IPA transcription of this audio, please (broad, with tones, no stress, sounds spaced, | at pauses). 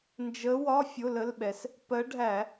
n d͡ʒ ə˨˦ w ɒ˧˥˧ fʲ ʊ˧˥˧ l ə˧˥˧ l ɓ ɛ˨˦ s | p ɜ˨˦ ɖʱ æ˧˩˧